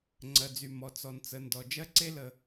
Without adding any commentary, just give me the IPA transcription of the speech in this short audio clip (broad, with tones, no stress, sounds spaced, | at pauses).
ŋ͡ǀ ɜ˩ d͡z y˩ m ɔ˩ t͡s ɔ˩ n t͡s ə˩ n d ɔ˩ d͡ʒ ɜ˥ ǀ e˥ l ə˩